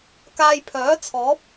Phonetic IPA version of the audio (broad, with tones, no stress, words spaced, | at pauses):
kaː˧jpʰœː˨˥t͡sʰɔː˨˥p̚